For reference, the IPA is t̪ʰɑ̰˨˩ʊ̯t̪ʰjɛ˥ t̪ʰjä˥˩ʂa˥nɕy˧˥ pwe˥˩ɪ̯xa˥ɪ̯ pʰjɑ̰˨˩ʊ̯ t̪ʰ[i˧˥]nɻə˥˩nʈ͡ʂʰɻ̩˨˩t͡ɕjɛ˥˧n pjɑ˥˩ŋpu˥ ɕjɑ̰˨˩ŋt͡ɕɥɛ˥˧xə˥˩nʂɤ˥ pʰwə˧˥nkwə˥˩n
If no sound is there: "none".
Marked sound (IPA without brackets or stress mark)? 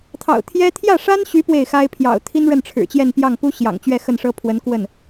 i˥